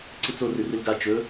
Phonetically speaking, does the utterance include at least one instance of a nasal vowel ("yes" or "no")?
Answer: no